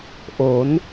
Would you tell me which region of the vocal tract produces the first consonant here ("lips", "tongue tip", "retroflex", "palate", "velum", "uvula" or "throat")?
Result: throat